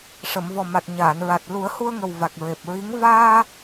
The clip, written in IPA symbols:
ʂ ə˨˩˨ m v ɔ˨˩ m a˨˩ t̚ ɲ aː˨˩˨ n ɹ a˨˩ t̚ l u˨˩˦ ə̯ h u˧ ə̯ ŋ ə˨˩ w v a˨˩ k̚ ɹ e˨˩ p̚ ɹ i˧˥ ŋ v aː˧

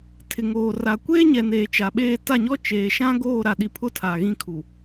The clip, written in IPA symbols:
tʰ ɪ˨ ŋ oː˨ r a˨ kʷ eː˦ ɲ ɛ˨ n eː˨ t͡ʃ a˨ ɓ eː˦˨ t a˦˨ ɲ ɔ˦ t͡ʃ eː˨ ʃ ã˦ ɡ oː˦˨ ɾ a˨ ɗ i˨ pʰ ʊ˦ tʰ a˨ ɣ ĩ˦ kʰ u˨

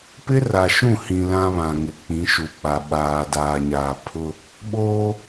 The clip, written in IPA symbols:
p ɪ˦ r a˨ ʃ ũ˦˨ h ĩ˨ l ã˦ β ã˨ ŋ ɪ˨ k͡p ĩ˨˦ ʃ u˨ k͡p a˨ ɓ aː˨ d aː˨ ɲ aː˨ pʰ ʊ˦ | ɓ oː˦

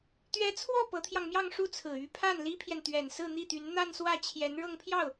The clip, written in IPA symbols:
t̪ ɥ ɛ˧˥ t͡sʰ w ɔ˥˩ p ɤ˧˥ t̪ʰ j ɑ˧ ŋ m j ɑ˥˧ ŋ ʂ u˥˩ t͡sʰ ɹ̩˨˩ y˧˥ pʰ a˥˩ n l i˥ pʰ j ɛ˨ n t̪ ɥ ɛ˨˩ n s ɹ̩˥˧ n̪ i˥˩ t̪ y˧˥ n n̪ a˥˧ n s w ä˥˩ t͡ɕʰ j ɛ˧˥ n ɻ ɤ˥˧ ŋ pʰ j ɑ˥˩ ʊ̯

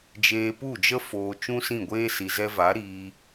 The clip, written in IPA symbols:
d͡ʒ eː˧ p u˦˨ d͡ʒ ə˦ f oː˧ t͡ʃ ũ˦ s ĩ˦˨ ɡʷ eː˦ s i˨ z ɛ˧ v a˨˦ ɾ iː˧

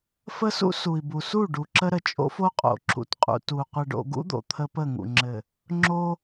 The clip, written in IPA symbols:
f ə˦ s ṵ˦ s u˨ i̯ b u˨ s u˦˨ ɖ u˨ ǁ ə˦ ɾ ə˨ t͡ʃʼ o̰˦ f o˦ qʼ o̰˨ ǁ ṵ˨ t qʼ ṵ˨ t u˨ qʷ ɘ˨ ɖ o̰˨ ɡ ṵ˦ d̪ o̰˨ t̪ʰ ə˦ p ə˦˨ ŋ ṵ˨ ŋ͡ǁ ɘ˨ | ŋ͡ǁ o˦

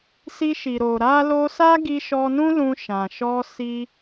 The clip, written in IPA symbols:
s i˧ ʃ i˨ ɾ o˨ ɾ a˧ l o˧ s a˦ ɡ i˧ ʃ ɔ˧ n ũ˦ l ũ˧ ʃ ã˨ ʃ ɔ˧ s i˦

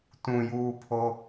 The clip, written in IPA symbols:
t ũ j uː pʰ o

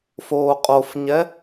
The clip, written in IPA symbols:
f oː qʼ o f ɲ ɛ

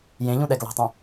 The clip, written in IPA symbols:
j ẽ ʎ ũ ɗ ɛ ɡ l ɑ̤ tˤ ũ

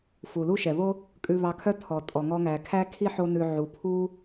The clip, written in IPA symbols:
f u˩ l u˥ ʃ ɛ˩ β o˥ | kʼ ʉ˧ β ɑ˧ kʰ œ˥ tʰ ɔ˩ tʼ ɔ˩ ŋ ɔ˧ ŋ æ˩ kʰ æ˥ kʰ i˥ ħ o˧ n ʉ˩ ʕ u˩ pʰ u˥

